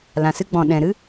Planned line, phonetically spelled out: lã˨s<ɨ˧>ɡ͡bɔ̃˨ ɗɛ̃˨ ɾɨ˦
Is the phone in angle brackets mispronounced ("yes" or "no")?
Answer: no